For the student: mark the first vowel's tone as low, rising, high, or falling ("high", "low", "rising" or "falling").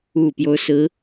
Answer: low